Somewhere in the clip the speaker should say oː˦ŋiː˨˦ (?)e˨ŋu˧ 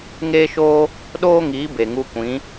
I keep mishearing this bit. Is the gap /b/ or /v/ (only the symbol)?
b